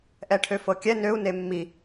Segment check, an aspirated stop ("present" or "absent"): present